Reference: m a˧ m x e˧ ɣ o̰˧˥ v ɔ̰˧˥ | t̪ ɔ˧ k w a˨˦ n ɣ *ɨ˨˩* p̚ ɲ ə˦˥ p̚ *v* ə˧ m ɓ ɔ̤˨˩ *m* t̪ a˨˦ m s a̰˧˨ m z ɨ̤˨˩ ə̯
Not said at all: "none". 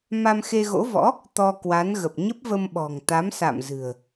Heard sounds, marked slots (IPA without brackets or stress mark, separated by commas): ə˨˩, v, ŋ